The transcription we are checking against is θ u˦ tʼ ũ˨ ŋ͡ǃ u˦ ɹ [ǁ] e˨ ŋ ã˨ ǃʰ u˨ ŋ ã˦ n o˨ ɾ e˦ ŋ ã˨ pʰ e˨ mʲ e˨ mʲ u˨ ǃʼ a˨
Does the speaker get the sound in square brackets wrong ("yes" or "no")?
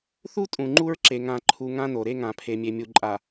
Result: no